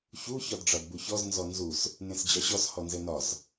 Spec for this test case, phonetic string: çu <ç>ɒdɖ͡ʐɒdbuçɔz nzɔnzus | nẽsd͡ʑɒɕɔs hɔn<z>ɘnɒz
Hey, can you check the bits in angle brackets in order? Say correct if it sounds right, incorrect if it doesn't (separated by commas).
correct, correct